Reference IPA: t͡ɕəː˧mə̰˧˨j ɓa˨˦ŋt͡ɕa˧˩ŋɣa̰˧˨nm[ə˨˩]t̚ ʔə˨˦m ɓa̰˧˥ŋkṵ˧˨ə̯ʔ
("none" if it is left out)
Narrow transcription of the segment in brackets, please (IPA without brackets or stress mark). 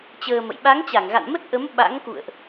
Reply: ə˦˥